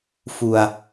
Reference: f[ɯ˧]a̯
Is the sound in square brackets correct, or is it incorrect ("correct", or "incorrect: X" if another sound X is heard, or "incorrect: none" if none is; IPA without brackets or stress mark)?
incorrect: u˧